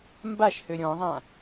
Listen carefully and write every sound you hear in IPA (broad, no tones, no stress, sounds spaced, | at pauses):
m b a ʃ h ø ɾʲ ɔ̃ ðˤ ã